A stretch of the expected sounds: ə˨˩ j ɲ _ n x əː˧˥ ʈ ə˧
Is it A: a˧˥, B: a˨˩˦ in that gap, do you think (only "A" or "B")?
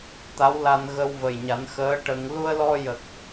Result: B